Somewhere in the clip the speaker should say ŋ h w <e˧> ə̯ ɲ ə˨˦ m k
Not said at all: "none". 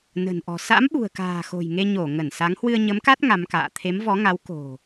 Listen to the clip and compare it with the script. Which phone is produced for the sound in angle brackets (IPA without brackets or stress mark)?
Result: ɨ˧